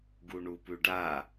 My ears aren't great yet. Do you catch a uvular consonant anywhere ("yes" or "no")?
no